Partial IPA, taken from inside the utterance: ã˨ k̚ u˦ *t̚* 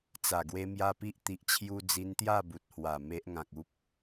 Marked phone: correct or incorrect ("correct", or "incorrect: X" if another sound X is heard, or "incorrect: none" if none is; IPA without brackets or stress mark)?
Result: incorrect: p̚